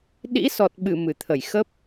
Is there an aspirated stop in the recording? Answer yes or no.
yes